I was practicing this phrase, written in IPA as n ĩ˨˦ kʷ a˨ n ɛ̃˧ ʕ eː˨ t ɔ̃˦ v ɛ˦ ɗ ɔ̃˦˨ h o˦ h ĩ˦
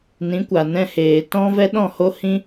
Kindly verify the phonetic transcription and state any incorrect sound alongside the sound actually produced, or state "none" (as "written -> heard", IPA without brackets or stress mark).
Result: ʕ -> h